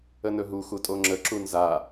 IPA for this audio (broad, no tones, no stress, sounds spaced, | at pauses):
ə n ɵ ɦ u x u tʼ o ŋ͡ǁ ə ǁ u n z a